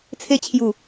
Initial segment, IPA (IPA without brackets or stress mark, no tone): t͡sʰ